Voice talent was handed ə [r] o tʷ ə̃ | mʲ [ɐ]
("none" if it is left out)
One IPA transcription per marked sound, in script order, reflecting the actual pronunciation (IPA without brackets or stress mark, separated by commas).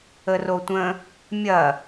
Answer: r, ɐ